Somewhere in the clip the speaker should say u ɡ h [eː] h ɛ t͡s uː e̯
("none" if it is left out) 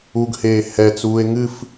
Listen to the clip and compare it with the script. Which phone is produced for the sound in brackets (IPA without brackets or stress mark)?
eː